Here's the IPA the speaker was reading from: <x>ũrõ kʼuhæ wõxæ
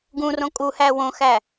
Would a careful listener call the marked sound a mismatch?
yes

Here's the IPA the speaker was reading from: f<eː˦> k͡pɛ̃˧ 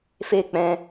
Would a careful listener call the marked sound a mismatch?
no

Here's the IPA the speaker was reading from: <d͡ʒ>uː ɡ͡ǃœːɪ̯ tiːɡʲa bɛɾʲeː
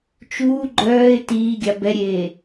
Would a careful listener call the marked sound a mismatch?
yes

